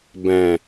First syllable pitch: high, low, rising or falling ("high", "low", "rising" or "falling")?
low